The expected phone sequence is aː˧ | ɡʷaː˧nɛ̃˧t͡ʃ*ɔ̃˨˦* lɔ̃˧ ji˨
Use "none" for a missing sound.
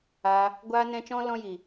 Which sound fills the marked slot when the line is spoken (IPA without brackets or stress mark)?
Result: ɔ̃˧